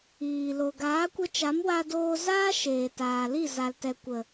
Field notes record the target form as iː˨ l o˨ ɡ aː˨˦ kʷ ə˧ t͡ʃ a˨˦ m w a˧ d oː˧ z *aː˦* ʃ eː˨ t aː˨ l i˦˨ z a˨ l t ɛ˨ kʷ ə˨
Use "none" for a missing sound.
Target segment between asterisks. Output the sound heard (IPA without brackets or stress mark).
aː˦